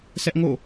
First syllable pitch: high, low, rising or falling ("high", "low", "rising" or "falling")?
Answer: high